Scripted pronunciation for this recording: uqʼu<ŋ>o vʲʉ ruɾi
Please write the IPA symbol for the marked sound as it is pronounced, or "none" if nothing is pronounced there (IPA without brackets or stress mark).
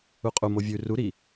m